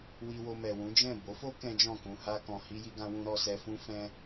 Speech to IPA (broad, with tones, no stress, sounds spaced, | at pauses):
w i˧ w o˧ m ɛ˨ w ũ˨˦ d͡ʒ ɛ̃˦˨ b o˨˦ f o˦ k ɛ̃˦ d͡ʒ ɔ̃˦˨ k ũ˧ h a˧ k ɔ̃˨ h i˧ j i˧ ɡ ã˧ w ũ˧ ɾ ɔ˧ s ɛ˧ f ũ˦ f ɛ̃˦